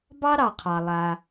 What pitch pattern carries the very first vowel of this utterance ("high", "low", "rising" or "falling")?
high